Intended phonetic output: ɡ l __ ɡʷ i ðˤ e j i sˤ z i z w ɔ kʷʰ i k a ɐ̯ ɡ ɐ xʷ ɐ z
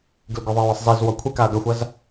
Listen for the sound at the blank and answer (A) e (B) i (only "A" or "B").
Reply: B